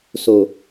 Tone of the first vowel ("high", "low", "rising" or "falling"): low